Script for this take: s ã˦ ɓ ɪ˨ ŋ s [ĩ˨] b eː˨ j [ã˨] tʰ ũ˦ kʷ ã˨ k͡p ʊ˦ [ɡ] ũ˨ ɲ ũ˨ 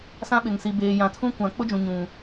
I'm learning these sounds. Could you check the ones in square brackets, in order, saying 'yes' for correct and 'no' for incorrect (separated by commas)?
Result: no, yes, no